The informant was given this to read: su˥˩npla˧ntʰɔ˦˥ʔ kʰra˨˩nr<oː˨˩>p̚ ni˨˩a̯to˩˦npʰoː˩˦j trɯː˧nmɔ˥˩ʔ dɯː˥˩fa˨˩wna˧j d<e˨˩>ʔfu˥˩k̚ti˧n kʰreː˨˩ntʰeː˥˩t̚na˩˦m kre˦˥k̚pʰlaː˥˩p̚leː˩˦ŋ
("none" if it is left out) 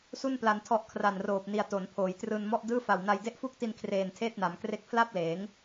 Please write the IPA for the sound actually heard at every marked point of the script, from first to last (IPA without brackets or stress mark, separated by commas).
oː˨˩, e˥˩